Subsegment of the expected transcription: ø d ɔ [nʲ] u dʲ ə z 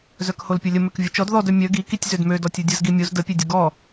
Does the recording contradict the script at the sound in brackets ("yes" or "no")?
yes